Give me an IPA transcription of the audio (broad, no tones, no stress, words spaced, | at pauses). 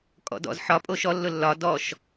kʼɔ̰dɔ̰z ħɒ pʼoʃɔ lːʊlːɒ dɔʃ